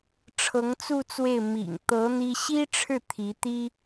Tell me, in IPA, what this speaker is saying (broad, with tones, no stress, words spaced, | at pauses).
ʈ͡ʂʰɤ˧˥ŋt͡su˥˧t͡swe˥˩ɪ̯ mḭ˨˩ŋt̪ɤ˧˥ n̪i˥ ɕi˥ʈ͡ʂʰɻ̩˥˩ t̪ʰi˧˥t̪i˥